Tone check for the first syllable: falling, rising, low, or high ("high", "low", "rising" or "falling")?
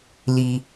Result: low